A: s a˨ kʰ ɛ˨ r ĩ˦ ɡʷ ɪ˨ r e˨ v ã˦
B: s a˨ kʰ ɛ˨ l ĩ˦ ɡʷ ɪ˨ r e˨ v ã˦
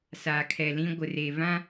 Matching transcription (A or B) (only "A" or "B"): B